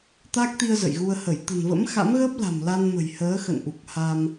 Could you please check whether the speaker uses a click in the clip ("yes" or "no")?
no